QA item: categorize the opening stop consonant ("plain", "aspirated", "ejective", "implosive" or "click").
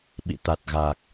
implosive